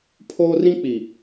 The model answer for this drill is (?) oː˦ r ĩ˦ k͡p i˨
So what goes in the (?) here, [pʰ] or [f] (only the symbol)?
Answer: pʰ